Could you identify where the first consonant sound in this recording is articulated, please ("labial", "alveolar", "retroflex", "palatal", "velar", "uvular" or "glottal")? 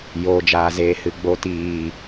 palatal